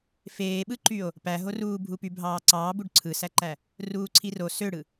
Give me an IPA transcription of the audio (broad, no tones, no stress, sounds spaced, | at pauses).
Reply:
f eː ɓ ɯ ǃ y o̯ | p æ ɦ o r uː bʱ u p y bʱ ɑː ǀ ɑː b u ɖ ǀʰ ɯ s æ ǃ æ | r uː ǀʰ i r o s ø ɽ ɯ